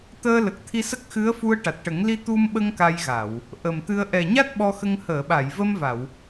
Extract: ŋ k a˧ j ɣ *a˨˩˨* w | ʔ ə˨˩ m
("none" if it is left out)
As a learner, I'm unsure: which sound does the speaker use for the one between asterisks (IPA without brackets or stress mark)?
a˨˩˨